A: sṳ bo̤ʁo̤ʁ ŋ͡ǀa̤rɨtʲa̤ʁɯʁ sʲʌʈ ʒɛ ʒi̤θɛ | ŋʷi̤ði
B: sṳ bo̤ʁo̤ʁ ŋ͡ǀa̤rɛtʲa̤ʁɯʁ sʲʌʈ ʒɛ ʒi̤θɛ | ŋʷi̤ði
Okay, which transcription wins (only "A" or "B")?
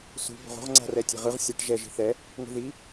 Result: B